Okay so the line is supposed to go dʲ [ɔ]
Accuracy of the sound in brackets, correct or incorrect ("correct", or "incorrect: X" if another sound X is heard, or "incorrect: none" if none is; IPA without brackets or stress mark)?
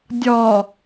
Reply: correct